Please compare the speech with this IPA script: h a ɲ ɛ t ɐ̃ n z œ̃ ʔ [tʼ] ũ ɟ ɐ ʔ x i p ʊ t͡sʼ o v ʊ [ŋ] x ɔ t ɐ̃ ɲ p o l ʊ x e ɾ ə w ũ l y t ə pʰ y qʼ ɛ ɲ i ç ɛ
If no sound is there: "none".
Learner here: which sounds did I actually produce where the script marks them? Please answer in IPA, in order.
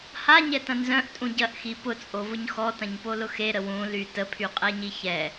tʼ, ɲ

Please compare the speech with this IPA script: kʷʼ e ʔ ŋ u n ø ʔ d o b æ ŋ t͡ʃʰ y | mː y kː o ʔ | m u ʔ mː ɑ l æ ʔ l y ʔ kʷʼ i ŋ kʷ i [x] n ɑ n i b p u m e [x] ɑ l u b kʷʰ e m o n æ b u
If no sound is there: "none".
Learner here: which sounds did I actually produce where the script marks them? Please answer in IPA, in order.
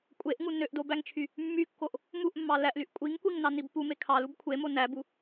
ŋ, kʰ

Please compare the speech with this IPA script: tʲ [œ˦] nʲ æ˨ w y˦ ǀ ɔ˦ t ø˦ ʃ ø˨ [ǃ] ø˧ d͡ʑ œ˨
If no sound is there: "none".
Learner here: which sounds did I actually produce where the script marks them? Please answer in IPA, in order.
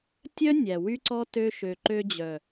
œ˦, ǃ

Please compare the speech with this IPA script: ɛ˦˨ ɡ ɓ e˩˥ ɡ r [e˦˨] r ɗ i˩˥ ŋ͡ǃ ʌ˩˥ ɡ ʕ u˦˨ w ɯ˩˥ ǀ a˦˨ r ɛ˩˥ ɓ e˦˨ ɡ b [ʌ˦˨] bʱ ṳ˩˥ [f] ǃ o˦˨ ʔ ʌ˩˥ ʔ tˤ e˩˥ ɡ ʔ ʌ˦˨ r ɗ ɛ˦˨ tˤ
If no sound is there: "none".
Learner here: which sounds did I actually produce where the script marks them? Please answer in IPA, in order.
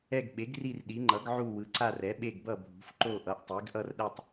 i˦˨, ʌ˦˨, f

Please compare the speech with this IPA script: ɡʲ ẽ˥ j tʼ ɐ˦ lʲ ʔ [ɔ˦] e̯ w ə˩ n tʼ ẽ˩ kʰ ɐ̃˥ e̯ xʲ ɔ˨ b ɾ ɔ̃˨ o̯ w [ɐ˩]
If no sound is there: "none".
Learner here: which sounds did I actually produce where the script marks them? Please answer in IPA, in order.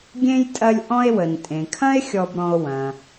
ɔ̃˦, ɐ̃˩

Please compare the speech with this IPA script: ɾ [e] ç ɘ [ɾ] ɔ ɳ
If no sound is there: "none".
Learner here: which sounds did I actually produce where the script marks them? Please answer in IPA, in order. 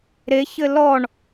e, l

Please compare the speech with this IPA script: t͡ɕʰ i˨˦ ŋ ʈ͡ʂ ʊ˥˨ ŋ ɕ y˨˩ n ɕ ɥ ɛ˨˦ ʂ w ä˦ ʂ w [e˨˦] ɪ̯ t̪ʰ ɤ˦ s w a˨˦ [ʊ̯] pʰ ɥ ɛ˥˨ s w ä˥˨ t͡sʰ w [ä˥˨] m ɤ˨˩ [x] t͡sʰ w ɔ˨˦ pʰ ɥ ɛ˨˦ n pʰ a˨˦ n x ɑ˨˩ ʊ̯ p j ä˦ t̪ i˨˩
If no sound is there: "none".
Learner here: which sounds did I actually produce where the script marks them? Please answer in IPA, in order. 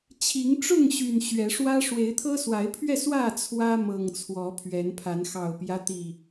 e˨˦, ɪ̯, ä˦, ŋ

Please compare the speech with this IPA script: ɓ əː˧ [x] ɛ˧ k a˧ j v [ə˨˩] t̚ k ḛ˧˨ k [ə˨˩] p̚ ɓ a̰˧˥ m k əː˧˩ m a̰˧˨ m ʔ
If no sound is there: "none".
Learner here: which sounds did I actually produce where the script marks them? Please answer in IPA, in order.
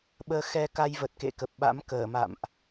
x, ə˨˩, ə˨˩

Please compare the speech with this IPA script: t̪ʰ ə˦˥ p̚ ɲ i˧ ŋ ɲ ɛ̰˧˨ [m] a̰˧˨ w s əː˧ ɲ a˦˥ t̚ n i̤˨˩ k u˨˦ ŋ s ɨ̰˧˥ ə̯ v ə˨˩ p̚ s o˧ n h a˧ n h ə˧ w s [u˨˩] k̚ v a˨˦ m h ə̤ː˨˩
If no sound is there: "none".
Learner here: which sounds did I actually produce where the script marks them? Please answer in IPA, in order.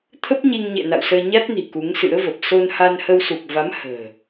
n, u˨˩

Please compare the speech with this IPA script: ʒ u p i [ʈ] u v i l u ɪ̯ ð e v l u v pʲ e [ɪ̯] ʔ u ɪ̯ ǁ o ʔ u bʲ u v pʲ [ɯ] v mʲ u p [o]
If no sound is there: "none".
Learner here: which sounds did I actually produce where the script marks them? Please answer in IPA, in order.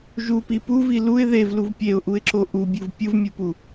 p, ʊ̯, ɯ, u

